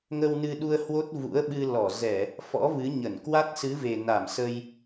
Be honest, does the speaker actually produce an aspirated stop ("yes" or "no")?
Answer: no